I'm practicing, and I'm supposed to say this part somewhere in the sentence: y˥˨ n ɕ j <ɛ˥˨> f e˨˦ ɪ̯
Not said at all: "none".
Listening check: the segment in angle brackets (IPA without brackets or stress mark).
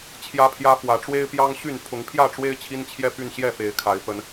ɛ˥˨